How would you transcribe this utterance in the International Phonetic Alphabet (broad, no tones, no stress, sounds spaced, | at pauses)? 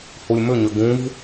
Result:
h u lʲ m ʏ ɲ ʏ ɡ ũ v